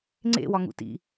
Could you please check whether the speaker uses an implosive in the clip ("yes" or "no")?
no